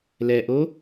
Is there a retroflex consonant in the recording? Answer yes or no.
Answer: no